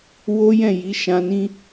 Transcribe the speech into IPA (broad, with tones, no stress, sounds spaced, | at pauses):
w o˦ j ɛ̃˦˨ j i˨˦ ʃ ã˧ n ĩ˦